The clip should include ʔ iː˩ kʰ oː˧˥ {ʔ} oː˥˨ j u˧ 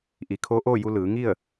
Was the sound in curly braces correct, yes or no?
yes